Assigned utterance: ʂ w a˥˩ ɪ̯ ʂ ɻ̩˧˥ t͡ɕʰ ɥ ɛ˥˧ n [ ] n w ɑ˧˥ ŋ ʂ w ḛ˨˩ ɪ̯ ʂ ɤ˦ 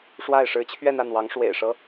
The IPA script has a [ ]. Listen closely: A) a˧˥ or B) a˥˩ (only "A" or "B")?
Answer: B